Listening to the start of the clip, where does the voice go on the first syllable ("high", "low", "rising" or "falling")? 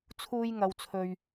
high